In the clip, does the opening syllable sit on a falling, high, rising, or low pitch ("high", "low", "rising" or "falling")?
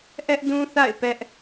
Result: high